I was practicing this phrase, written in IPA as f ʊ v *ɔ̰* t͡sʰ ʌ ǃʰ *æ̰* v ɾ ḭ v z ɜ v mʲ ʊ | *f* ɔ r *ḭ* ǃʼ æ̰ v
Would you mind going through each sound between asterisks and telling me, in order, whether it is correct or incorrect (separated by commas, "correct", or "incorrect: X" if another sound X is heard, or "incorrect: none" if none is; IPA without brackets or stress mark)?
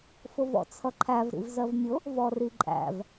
correct, incorrect: æ, incorrect: v, incorrect: i